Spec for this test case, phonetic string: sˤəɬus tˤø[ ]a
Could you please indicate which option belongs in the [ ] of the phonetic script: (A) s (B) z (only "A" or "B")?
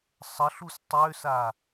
A